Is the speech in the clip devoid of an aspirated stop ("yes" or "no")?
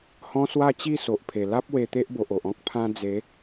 no